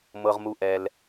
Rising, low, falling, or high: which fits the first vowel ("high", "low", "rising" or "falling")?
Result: low